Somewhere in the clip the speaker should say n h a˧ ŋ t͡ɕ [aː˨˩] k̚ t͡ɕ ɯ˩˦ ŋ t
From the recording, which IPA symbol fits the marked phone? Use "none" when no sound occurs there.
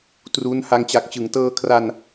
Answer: a˨˩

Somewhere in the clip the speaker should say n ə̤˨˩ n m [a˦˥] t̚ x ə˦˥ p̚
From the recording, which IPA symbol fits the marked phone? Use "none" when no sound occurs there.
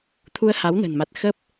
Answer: a˨˩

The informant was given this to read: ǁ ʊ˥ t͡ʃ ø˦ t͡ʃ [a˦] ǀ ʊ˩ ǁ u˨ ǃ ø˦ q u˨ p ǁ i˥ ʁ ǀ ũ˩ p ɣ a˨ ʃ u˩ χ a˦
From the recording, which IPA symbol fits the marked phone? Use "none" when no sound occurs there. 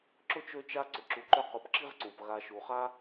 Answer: a˦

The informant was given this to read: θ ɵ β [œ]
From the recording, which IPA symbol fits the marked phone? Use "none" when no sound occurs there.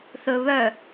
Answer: œ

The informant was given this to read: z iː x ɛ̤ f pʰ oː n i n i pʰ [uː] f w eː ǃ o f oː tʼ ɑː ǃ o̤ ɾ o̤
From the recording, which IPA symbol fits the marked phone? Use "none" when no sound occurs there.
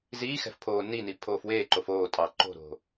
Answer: oː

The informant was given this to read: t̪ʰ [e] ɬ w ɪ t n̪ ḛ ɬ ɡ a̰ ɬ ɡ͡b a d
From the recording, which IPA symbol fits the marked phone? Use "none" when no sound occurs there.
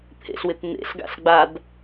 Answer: ḛ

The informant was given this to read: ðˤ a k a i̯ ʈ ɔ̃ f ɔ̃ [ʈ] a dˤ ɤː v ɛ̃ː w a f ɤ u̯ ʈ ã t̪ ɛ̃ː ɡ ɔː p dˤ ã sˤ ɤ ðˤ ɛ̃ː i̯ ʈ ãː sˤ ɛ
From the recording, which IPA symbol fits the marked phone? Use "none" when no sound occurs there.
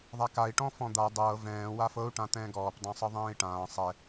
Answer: d̪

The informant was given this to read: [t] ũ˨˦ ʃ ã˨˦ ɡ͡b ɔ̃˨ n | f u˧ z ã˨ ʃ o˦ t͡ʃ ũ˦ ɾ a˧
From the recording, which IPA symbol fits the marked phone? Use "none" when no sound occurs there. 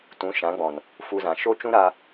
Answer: t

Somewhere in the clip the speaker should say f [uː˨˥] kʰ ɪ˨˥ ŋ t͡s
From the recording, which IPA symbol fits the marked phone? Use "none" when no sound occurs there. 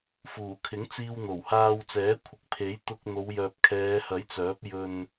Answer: uː˨˩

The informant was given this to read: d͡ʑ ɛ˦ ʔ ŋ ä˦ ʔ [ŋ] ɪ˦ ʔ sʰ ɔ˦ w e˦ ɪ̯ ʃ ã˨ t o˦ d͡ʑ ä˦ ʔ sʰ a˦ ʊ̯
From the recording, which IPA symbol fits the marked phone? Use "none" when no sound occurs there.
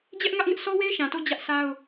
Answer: ŋ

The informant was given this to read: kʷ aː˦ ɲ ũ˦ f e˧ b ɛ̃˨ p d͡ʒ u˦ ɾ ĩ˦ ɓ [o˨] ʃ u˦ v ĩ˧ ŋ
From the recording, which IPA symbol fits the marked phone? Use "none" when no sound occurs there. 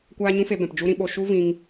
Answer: o˧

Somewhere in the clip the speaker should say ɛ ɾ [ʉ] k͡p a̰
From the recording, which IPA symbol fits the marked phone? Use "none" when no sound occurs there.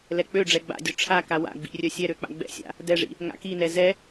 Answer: ø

